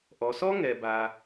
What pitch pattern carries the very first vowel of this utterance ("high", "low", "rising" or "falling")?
low